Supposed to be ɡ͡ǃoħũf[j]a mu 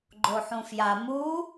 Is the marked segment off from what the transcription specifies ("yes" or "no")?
no